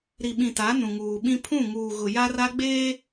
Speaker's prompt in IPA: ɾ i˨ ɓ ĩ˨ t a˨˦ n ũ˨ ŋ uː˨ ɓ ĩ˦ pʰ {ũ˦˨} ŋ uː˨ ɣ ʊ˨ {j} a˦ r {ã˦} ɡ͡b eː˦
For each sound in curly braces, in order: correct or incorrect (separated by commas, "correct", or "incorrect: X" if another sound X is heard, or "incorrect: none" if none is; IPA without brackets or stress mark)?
correct, correct, incorrect: a˦